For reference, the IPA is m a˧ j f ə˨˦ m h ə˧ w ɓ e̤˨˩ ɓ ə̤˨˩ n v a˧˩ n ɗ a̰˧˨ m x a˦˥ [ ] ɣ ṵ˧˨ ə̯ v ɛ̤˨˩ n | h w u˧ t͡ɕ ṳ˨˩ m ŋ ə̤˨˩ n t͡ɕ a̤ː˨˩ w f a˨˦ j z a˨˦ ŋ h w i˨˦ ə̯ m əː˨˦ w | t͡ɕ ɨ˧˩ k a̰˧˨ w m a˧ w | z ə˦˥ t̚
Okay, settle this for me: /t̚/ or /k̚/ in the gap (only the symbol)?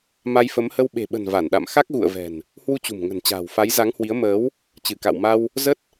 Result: k̚